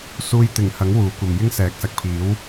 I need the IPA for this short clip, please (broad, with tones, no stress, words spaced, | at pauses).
suː˧j t̪ɪ˨˩ŋhɐ˨˥ŋ wuː˨˥kʷɐ˨mjɪ˥ŋ sɛː˨˥k̚sɐ˨k̚pʰiː˨˥w